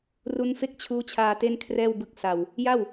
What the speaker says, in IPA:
r u˦˥ n f e˥˩ k̚ t͡ɕʰ uː˦˥ t͡ɕʰ aː˧ t e˥˩ n kʰ r ɛː˥˩ w b ɯ˥˩ k̚ s a˧ w | j a˥˩ w

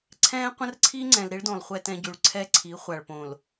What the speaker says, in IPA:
ǀʰ ɛ̃ː˦ qʷ ə̃˦ r ǀʰ i˦ ŋ͡ǀ ɛ̃˨ l ɾ i˦ ɭ d õ˨ lˠ χʷ ɛ˦ t ɛ̃˦ ɟ ʉ˨ ɭ ǀʰ ɛ˦ ǀʰ i˨˦ χʷ a˨ ɭ p õ˨ l

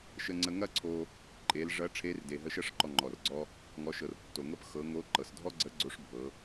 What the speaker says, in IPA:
ʃ ə˧ ŋ͡ǀ ə˧ ŋ ɐ˥ ǀʰ o˧ | ǃʼ e˩˧ l ʐ ɐ˧˥ ʈ͡ʂʰ e˧˥ r d e˩ ɦ ə˧ ʃ ɐ˥ ʂ ǃ ɔ˧ ŋ͡ǃ ɔ˩ r ɡ͡ǀ ɔ˥ | ŋ ɔ˩˧ ʃ ɤ˩ r tː o˩ ŋ ɤ˥ p x ɤ˩˧ ŋ o˧˥ ǃ ɤ˩ s dʱ ɔ˥ ɡ͡ǀ ə˧˥ ɡ͡ǀ o˧˥ ʂ bʱ ɤ˩˧

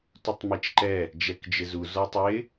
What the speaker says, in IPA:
t u tˤ m i t͡ʃ ǃ ɛ | d͡ʒ ɛ k d͡ʒ ɪ z u z ɔ tˤ ɪ

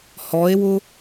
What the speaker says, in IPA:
h ɔ e̯ w ʊ

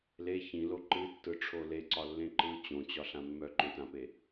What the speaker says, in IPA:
l e ç ĩ l o ǃ ɨ tː ɯ ʈ͡ʂʰ o l e ǀ ɒ lː ẽ ǃ ɯ t͡ɕ õ t͡ɕ ɒ ɬ ã mː œ ǃ œ̃ t ã p e

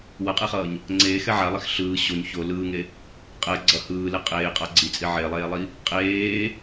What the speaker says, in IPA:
w ʌ qʼ e χ ʌː ɲ | ŋ͡ǀ eː x ɛ ʕ a lˠ i x ɬ ɯː ɕ o ɲ ç o l ɯː ŋ e | qʼ ɛ ɡ͡ǀ ʌ h ɯː l e qʼ eː qʼ a ɡ͡ǀ i t͡sʼ i ʕ e lˠ eː lˠ i | qʼ eː

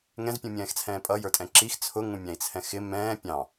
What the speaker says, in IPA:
ŋ ɛ̃ z pʲ ũ mʲ ɛ̃ː x t͡sʰ ɛ̃ː pʼ ʌ j ə˞ tʼ ɛ̃ ǁ i x t͡sʰ ʊ ŋ ũ mʲ æ̃ i̯ t͡sʰ ɛ̃ x ɪ m ɛ̃ː pʲ ɑ̃

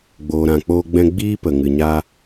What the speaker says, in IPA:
ɡ͡b oː˨ ɾ ã˨ k͡p oː˧ ɡ͡b ɛ̃˧ ɡ͡b iː˦ p ə˨ ŋ ɨ˨ ɲ a˧

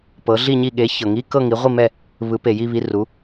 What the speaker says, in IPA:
p ɤ˨˦ ɮ i˥˧ ɲ i˥˧ ɠ e˨˦ ç ɤ˨ ŋ i˧˥˧ k ɤ˥˧ ŋ i˨˦ ʁʷ i˥˧ m ɛ˥˧ | β ɯ˨˦ p e˨ j i˥˧ β i˧˥˧ r u˨˦

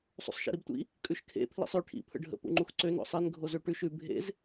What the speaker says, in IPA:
sˤ ṵ sˤ ʃ ḭ ɾ i b tʷ ḭ | kʼ ʉ ʃ kʰ ḛ pʰ l ḭ sˤ ʉ ʈʰ ḭ pʰ ə̰ ɖʱ ə̰ p ṵ ŋ͡ǃ u x ǀ ø n o̰ sˤ e n ɡʱ o z ø ʈ ʉ ʃ ʉ bʱ ḛ z

